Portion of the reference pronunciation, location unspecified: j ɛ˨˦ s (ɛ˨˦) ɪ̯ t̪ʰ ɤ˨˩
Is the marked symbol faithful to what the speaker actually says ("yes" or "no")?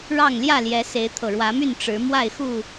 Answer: no